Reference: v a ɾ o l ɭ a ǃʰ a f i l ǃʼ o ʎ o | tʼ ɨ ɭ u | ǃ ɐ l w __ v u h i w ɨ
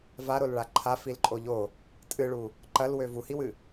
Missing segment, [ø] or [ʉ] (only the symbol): ø